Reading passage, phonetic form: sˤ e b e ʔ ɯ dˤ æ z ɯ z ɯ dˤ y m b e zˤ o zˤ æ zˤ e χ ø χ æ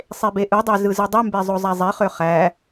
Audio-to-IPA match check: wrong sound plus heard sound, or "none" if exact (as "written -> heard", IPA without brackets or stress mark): none